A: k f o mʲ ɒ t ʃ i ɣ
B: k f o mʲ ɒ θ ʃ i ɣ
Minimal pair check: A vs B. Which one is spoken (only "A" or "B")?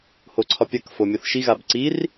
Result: B